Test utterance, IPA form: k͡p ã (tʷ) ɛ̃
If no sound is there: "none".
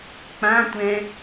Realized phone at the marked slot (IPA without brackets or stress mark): tʷ